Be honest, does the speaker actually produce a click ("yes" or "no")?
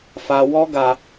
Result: no